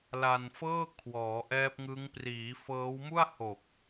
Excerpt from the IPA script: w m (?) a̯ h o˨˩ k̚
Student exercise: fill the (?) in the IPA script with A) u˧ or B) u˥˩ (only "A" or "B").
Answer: B